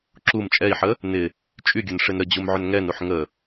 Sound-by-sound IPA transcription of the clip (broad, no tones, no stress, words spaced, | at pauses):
ǁum t͡ʃʼɛi̯ħə | nɪ | t͡ʃʼyɡʲʊnʂɪn ɾəd͡ʑumʕʏn ŋɛnuħ ŋə